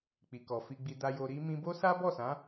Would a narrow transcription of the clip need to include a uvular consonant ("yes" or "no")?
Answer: no